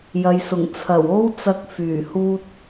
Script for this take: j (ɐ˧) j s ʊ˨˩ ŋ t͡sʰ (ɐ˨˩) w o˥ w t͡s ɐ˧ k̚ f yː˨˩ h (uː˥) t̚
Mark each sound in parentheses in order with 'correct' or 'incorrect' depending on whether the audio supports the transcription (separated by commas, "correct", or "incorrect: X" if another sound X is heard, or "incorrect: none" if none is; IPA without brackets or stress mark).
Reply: incorrect: ɐ˨, correct, correct